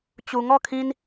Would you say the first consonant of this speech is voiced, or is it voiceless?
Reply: voiceless